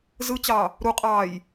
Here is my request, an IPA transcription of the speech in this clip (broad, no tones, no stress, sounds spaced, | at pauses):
z ɯ t͡ɕ ɑ | ɾ u qʼ ɑː j